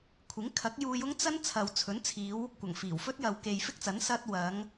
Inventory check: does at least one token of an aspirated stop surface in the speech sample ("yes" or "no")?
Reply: yes